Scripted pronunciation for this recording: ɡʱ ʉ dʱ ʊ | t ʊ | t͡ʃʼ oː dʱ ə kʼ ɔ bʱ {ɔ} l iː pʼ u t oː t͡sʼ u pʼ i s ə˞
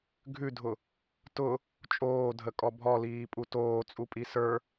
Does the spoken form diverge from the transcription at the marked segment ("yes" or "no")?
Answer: no